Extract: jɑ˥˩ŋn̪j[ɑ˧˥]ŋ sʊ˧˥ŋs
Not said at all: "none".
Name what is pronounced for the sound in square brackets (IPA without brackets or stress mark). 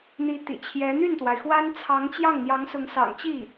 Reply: ɑ˧˥